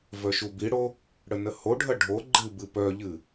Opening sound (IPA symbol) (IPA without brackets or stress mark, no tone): v